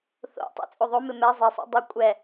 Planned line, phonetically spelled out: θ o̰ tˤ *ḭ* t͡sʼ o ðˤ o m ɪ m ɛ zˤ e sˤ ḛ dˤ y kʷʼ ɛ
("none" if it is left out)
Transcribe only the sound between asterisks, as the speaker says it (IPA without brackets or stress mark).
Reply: ḛ